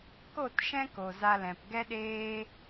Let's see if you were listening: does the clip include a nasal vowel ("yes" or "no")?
yes